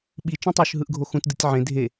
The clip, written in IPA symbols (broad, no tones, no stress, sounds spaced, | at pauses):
ɓ i t͡ʃ ũ tˤ o ʃ ɦ ɯ ʔ ɡʱ o x ũ t d ɯ tʲ ʕ ẽ dʱ e